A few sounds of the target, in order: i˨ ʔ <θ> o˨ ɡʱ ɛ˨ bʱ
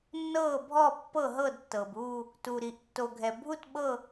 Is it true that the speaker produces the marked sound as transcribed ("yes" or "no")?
no